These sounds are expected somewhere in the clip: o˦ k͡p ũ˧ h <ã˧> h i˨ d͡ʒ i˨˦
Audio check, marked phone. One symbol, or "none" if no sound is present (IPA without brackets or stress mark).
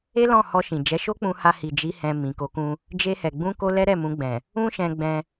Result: a˧